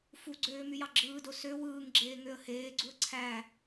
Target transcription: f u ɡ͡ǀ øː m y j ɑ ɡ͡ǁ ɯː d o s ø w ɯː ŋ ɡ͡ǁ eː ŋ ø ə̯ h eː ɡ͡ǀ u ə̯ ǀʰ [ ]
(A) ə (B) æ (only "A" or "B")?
B